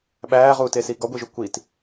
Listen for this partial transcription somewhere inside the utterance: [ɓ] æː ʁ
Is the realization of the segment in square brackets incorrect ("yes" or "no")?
no